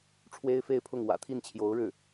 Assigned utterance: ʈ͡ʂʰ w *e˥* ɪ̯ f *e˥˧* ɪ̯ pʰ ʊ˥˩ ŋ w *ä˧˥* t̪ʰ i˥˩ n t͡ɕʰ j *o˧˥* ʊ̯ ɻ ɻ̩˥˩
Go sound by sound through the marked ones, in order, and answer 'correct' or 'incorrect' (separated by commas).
correct, correct, incorrect, correct